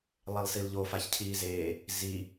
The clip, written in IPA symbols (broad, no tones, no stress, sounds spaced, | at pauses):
lˠ e lˠ s i l ʎ o f a ç cʰ iː z eː | z i